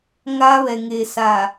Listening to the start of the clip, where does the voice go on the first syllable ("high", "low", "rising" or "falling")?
high